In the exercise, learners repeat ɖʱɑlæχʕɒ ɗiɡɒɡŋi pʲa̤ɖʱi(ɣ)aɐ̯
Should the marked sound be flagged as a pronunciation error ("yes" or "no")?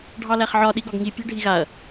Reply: no